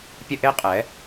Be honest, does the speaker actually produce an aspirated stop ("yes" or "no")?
no